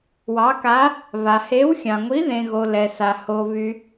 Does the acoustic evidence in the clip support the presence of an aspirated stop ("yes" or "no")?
no